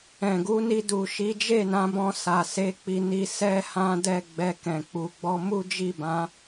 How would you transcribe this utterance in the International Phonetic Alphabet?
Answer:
ɛ̃˨ ɡ u˨˦ n i˧ d u˨ ʃ i˨˦ d͡ʒ e˦˨ n ã˨˦ b ɔ̃˧ s a˨ s e˨˦ k͡p i˧ n i˧ s ɛ˦ h ã˦ d ɛ˦˨ ɡ͡b ɛ˧ k ɛ̃˨ k͡p u˨ ɡ͡b ɔ˧ m u˦ d͡ʒ i˦˨ b ã˨˦

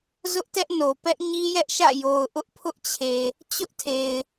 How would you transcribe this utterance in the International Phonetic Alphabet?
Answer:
z ʊ˦ ʔ t ɛ˦ ʔ n o˨ p ɛ˦ ʔ ɲ i˦ j ɛ˦ ʔ ʃ ä̰˦˨ j o˨ ʊ̯ ʔ ʊ˦ ʔ pʰ ʊ˦ ʔ t͡ɕʰ e˨ | t͡ɕ ʊ˦ ʔ tʰ e˨ ɪ̯

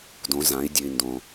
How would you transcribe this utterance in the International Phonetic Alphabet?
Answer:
d õ˩˧ z ã˩˧ i̯ dʲ ʉ˩ i̯ n d õ˩

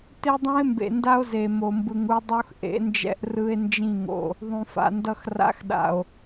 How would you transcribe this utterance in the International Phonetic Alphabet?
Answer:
t e˦ dˤ ũ˦ e̯ m b ḛ˨ n d a˦ o̯ z e˨ m o˨ m b ɯ˨ ŋ u˦ dˤ o˦ x ʔ ḛ˨˦ n d͡ʒ ɛ̰˦ ʔ r ɯ˦ e̯ n d͡ʒ ĩ˦˨ ŋ o̰˨ | ðˤ ũ˨ f a̰˨ n d ʌ˦ x r a̰˦ x ɗ a̰˨ o̯

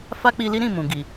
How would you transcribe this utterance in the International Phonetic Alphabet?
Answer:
f a˦ k͡p i˧ l i˦ ɾ ĩ˦˨ m ũ˨ ɡ i˨

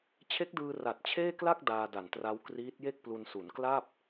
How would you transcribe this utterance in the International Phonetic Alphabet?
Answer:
t͡ɕʰ e˦˥ k̚ d ɯː˧ r a˨˩ t̚ t͡ɕʰ eː˥˩ k l a˥˩ k̚ d aː˧ d a˨˩ n t r a˦˥ w k r iː˦˥ t̚ j e˥˩ k̚ p l u˧ n s u˩˦ n k l a˥˩ p̚

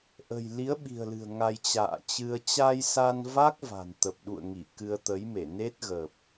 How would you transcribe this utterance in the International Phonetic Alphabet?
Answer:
ʔ ə̤˨˩ j l i˨˦ ə̯ ɓ i̤˨˩ ə̯ l ɨ̤˨˩ ə̯ ŋ a˧ j t͡ɕ a̰ː˧˨ t͡ɕ ɨ˧ ə̯ t͡ɕ a˧ j s a˧ n v a˦˥ k̚ v a̤˨˩ n t̪ ə˨˩ p̚ ɗ ṵ˧˨ ə̯ ŋ i˧˩ k ɨ˧ ə̯ t̪ ə˨˦ j m e˧˩ n e˦˥ t̚ ɣ əː˨˩ p̚

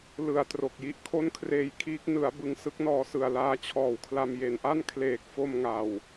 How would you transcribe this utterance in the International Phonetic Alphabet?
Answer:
l ɯ˨˩ a̯ t r o˨˩ k̚ j i˦˥ ʔ kʰ o˥˩ n kʰ r eː˧ j kʰ iː˦˥ k̚ n ɯ˩˦ a̯ b ɯ˧ ŋ s ɯ˦˥ k̚ n ɔː˧ s ɯ˨˩ a̯ l aː˦˥ t͡ɕʰ ɔː˨˩ w kʰ l a˧ m j e˨˩ n ʔ a˥˩ n kʰ l eː˨˩ k̚ f o˧ m ŋ a˨˩ w

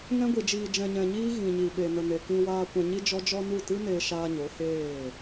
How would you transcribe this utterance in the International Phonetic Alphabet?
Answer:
ŋ ɛ̃˦ ɡʷ i˨ d͡ʒ iː˨ d͡ʒ ɛ̃˨ ɲ ɛ̃˨ ɲ iː˦ ɣ ĩ˨ ɲ i˨ ɓ e˨ n ə˨ n e˨ k ĩ˧ w aː˧ kʷ ɛ̃˧ ɲ i˦ d͡ʒ ɔ˦ d͡ʒ ɔ˧ n u˦˨ t ɨ˦ n eː˧ ʃ aː˧ ɲ o˨˦ h eː˦˨

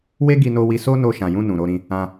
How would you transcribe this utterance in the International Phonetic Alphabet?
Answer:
w e˦ ɡ i˧ n o˧ w i˧ s o˦ n o˧ ʃ ã˨ j ũ˧ n ũ˨ ɾ o˧ ɾ ĩ˧ | ã˧

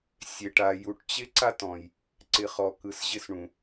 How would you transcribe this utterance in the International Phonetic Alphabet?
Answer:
sʲ e˨ ʈ a˨ j u˨ ʈ t͡ɕ ɪ˦ ǀ a˦ t ɔ̃˨ j | ǀ ɪ˨ χ ɔ˨ k ɯ˨ s ʑ ɪ˦ s ɳ ũ˨

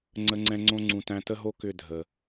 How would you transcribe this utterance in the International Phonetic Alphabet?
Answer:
ŋ͡ǀ ə˦ ŋ͡ǀ ɛ̃˦ ŋ͡ǀ õ˦ ŋ͡ǀ ũ˨ t æ̃˦ t ə˦ ɦ o˦ k ʏ˦˨ dʱ ə˨

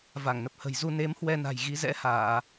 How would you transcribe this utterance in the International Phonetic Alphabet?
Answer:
v a˧˩ ŋ n ə˨˩ p̚ h ə̤˨˩ j z u˧ n e˨˦ m h w ɛ˧ n a̤˨˩ j ɣ i˨˦ z ɛ̰˧˥ h aː˧˩˨

